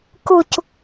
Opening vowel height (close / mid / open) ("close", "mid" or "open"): close